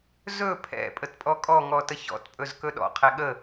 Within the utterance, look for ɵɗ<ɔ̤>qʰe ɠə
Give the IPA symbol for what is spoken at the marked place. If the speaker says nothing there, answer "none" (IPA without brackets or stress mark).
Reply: ɔ̰